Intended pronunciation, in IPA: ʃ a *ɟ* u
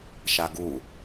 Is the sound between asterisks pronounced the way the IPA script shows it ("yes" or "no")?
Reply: no